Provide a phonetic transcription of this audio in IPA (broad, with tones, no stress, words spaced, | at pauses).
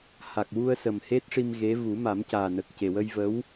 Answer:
ha˨˩k̚wu˧ə̯sə˨˩m he˦˥t̚ʂi˧m ɣe˧˥ vu˨˩˦ma˨˩˦mcaː˨˩ nə˨˩k̚ ce˨˩wə˧jvə˧˥w